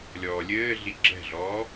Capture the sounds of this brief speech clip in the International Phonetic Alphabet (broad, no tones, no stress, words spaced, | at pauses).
lʲɔːlʲɘːɮi ɡ͡ǁɛ̤ɮɔː